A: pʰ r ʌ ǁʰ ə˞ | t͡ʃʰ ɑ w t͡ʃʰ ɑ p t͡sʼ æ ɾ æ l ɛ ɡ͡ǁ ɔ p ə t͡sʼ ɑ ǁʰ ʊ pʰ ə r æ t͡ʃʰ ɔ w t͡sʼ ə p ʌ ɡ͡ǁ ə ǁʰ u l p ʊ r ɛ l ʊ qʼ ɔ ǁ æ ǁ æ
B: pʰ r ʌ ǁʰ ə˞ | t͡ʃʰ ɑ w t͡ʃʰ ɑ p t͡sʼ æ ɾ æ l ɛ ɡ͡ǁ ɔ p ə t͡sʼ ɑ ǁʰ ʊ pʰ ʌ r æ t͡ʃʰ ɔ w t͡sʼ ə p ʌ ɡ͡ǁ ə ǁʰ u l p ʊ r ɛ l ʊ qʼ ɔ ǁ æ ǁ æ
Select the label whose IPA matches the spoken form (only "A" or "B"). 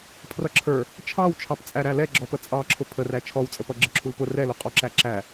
A